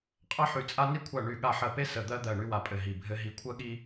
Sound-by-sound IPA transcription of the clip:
qʼ ɜ˥ ħ y˦˨ t͡sʼ a˥ n i˥ kʷʰ a˦˨ ɳ y˦˨ ɠ a˦˨ ħ ɜ˦˨ p e˥ s ə˦˨ d̪ ɜ˥ d̪ ɜ˦˨ ɳ y˥ w a˦˨ pʼ ɘ˦˨ ɦ i˦˨ bʱ ɘ˥ ɦ i˦˨ kʷʰ ɜ˥ ɠ i˥

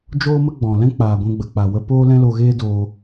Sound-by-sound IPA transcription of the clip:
d͡ʒ oː˦ m ə˦ ɡ͡b ɔ̃˨ l ɛ̃˦ k͡p aː˨ ɡʷ ɛ̃˧ ɡ͡b ə˨ k͡p a˨ w ə˧ p oː˦ l ɛ̃˦ l o˧ ɣ eː˦ d oː˧

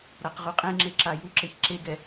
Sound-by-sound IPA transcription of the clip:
ɾ a q ʁ u qʼ ẽ ŋ͡ǁ e ǁ a j u ǁ e ç ǁ e ɡ ɛ

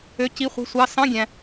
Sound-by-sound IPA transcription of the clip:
ø˧˥˧ c i˧˥˧ χʷ i̤˧˥˧ sʷ ɑ˧˥˧ s ɑ̃˧˥˧ ɡʲ æ̃˨

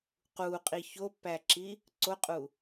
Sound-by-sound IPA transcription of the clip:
q u qʼ i ç o pː æ ǁ i | ǀ o qʼ u

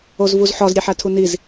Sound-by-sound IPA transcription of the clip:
o z v u z ħ ɒ z ɾʲ e ħ æ tʰ u n i z

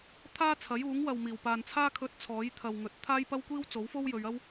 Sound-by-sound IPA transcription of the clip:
t̪ʰ aː˥ t͡sʰ ɐ˨˥ j uː˨˥ ŋ w ɐ˨ w m iː˨˩ w p aː˨ n t͡sʰ aː˥ kʰ ɵ˧ t̚ t͡sʰ ɔː˨˥ j t̪ʰ ɐ˨ w ŋ ɵ˨ t̚ t̪ʰ aː˥ j p ɐ˥ w kʷ iː˥ w t͡s o˨˥ w f o˥ w j ɵ˨˧ ɥ ɐ˥ w

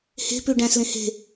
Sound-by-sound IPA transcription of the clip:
h e̤ p ʉ ɖ æ̃ s l ẽ h e̤

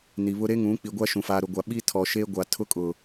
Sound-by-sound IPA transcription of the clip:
n i˨ β ʊ˦ ɾ e˦ ŋ ũ˨˦ k͡p i˨ ɡʷ a˦ ʃ ũ˨ f aː˨ ɾ ʊ˨ ɡʷ a˨ ɓ i˦ tʰ ɔ˨ ʃ eː˦ ɡʷ a˨ tʰ ʊ˦ kʼ ʊ˨

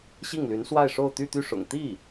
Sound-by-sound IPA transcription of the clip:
ɕ i˥˩ ŋ l y˧˥ n s w a˥˧ ɪ̯ ʂ o˥˧ ʊ̯ t̪ y˥˧ t̪ y˥˩ ʂ ʊ̰˨˩ ŋ t̪ i˥˩

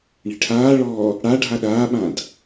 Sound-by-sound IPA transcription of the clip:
ɳ i̤ ʈʰ aː ɭ ɔː | ɽ a ɖʱ a ɗ aː ɓ ã d

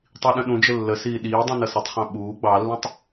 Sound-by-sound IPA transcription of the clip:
tˤ i ɗ ə̃ ɗ ũ d͡ʒ ə lː ə s iː ɗ iː dˤ ũ n ʌ s ə tˤ χ ɑ̃ ɓ uː ɡ͡b ɑ lː ũ tˤ

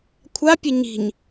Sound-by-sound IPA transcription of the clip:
kʷʰ a pʲ ə ɲ i̤ ɲ

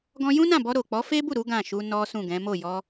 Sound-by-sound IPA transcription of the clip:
ɡ ɔ̃˧ j ũ˦ n ã˦˨ b ɔ˧ ɾ o˨ k͡p ɔ˨˦ f e˦ b u˦˨ ɾ u˨˦ ɡ ã˦˨ ʃ u˧ n ɔ˦ s ũ˦˨ ɡ ɛ̃˨˦ m o˦˨ j ɔ˧

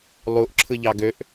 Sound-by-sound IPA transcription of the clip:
lˠ u ʔ ǁʰ ɯ ʎ ɑ ɡ ø ʔ

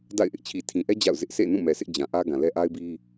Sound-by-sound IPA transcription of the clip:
d a̰˦˨ ɪ̯ ʔ ɪ˦ ʔ t͡ɕʰ i˨ tʰ ĩ˨ ʔ ɛ˦ d͡ʑ a̰˦˨ ʊ̯ z ɪ˦ ʔ sʰ ḛ˦˨ n ũ˦˨ m ɛ˨ s ɪ˦ ʔ d͡ʑ ã˨ ʔ ä˦ ɡ ã˨ l ɛ˦ ʔ a˦ ɪ̯ b i˦

